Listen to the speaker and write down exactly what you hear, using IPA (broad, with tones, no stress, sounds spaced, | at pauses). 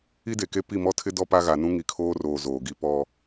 i˦ d e˨ k e˦ p i˦˨ m ɔ˦ tʰ ɪ˦ d ɔ˦ p a˦ ɣ a˨ n ũ˦ ŋ i˨ kʰ oː˦ r oː˨ z oː˨ ɡ i˦ p ɔ˦